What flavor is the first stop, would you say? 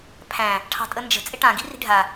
aspirated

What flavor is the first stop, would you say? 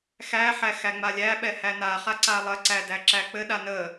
implosive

